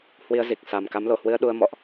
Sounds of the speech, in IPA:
h w i˧ ə̯ z i˨˩ k̚ s a˨˩ m k a˨˦ m l o˧˩ h w ɨ˧ ə̯ ɗ u˧ ə̯ m ɔ̰˧˨ ʔ

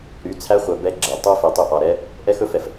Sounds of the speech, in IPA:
ɾ y˨˦ t͡sʰ æ˦ χʷ œ˨ b ɛ˦ ɡ͡ǁ ɛ˨ tˤ u˦ f i˨ tˤ y˧ ʔ ɑ˨ ɾ ɛ˦ | ʔ ɛ˦ x ɵ˦ f ɛ˨ f

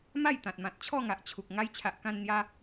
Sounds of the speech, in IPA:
m a˥˧ j t̪ ã˨ t̚ m ã˨ t̚ t͡ɕʰ ɔ˥˧ ŋ a˨ ʔ t͡ɕʰ u˨ k̚ ŋ a˧ j t͡ɕʰ a˨ ʔ k ã˧ n n̪ j a˧

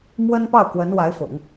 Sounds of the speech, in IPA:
m w ə˥ n p ɑ˥˩ ʊ̯ k w ə˧˥ n w a˧˥ ɪ̯ f ʊ̰˨˩˦ ŋ

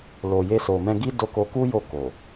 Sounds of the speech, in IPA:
l o˨ j e˧ s o˨ m ɛ̃˧ ɡ i˦ d o˧ k o˧ k u˦ j o˦˨ k o˨

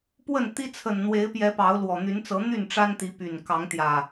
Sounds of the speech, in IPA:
p w ə˥˨ n t̪ i˦ t͡sʰ ə˨˩ n n̪ w e˨˦ ɪ̯ p j ɛ˨˦ p ɑ˨˦ ʊ̯ l w ɔ˨˩ n̪ y˨˦ n t͡s ɤ˨˦ n̪ y˥˨ n ʈ͡ʂ a˦ n t̪ i˨˦ p y˨˩ n k ɑ˨˦ ŋ t̪ j ä˨˩

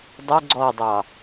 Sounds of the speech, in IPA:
dˤ ʊ ɡ͡ǀ ɔ dˤ ɑ

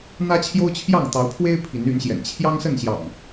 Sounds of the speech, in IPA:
n̪ ä˦ t͡ɕʰ j o˦ ʊ̯ t͡ɕʰ j ɑ˥˨ ŋ t̪ ɑ˨˦ ʊ̯ pʰ w e˦ ɪ̯ pʰ i˨˦ n y˨˦ n ɕ j ɛ̰˨˩ n t͡ɕʰ j ɑ˦ ŋ s ə˥˨ n ɕ j ɑ̰˨˩ ŋ

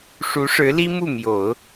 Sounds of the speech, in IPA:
ʂ u˧˥ ʂ ɻ̩˧˥ l i˥ m u˥˩ m j o˨˩˦ ʊ̯

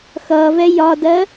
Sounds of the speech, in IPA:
x ʌː v ɛ j ɒ d ɜ

